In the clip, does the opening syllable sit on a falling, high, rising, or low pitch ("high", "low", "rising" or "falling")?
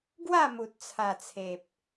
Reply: falling